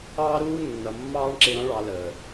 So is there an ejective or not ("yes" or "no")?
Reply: no